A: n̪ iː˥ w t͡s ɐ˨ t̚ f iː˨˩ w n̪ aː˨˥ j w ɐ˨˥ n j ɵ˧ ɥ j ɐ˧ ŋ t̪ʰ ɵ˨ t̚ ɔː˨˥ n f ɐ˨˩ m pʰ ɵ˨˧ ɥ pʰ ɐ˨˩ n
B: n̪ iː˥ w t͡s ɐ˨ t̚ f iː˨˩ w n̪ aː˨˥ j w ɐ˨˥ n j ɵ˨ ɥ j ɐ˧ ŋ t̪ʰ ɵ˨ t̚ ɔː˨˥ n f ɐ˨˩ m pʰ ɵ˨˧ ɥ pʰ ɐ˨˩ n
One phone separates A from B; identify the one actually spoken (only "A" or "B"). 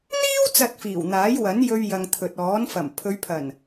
A